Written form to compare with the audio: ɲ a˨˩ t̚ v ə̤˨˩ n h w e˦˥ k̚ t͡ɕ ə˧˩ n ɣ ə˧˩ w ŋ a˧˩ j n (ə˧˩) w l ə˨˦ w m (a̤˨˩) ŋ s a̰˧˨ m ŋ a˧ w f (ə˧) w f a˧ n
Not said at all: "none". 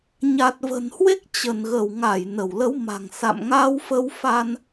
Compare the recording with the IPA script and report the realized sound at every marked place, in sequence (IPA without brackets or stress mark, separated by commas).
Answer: ə˧˩, a̤˨˩, ə˧